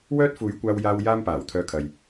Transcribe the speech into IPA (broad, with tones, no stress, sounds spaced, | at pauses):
w œː˥ t̚ f uː˨˥ j kʷ aː˧ w j aː˧ w j aː˥ m p aː˨˩ w t̪ʰ œː˧ kʰ ɐ˨ j